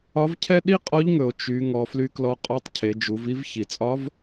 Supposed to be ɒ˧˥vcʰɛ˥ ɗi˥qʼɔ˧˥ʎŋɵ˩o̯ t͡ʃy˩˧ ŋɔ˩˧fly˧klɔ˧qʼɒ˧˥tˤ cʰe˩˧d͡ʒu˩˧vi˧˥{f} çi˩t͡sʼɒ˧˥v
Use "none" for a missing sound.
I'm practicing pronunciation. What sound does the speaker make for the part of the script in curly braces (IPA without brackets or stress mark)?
v